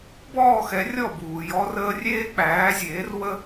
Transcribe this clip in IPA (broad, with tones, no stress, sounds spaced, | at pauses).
b ɔː˥˩ x ɛ˩˥ rʲ ɔ˥˩ b uː˩ j ɔ˧ r əː˧ rʲ eː˥ k͡p æː˩˥ zʲ eː˩˥ r w ə˥